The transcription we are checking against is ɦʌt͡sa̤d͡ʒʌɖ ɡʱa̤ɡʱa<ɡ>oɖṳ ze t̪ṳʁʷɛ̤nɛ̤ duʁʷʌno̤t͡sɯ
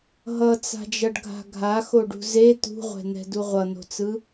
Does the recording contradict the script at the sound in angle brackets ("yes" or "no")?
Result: yes